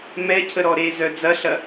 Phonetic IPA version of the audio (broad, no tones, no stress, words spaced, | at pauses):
mɛcʰəɾɔ ɾezœ d͡zɐɬɐ